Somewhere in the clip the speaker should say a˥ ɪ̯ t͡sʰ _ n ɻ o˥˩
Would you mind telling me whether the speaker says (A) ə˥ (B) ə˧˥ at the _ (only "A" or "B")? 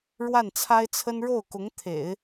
A